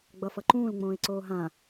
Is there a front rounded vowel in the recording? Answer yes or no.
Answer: no